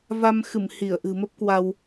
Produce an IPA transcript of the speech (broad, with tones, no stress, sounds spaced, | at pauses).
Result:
v a˧ m x ɨ˧˩ m h i˧˩ ə̯ ʔ ɨ̤˨˩ m ə˦˥ p̚ k w a˧ w